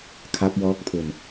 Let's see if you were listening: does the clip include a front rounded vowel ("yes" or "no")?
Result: no